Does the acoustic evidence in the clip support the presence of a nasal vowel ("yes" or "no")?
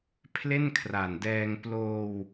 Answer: no